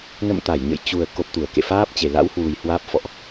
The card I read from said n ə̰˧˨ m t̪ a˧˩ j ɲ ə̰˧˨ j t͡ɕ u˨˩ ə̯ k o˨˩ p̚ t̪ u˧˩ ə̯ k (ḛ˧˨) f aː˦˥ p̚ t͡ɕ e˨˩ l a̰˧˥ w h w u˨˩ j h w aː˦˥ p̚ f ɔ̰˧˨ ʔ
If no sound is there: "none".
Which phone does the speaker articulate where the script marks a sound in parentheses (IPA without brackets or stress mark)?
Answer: ḛ˧˨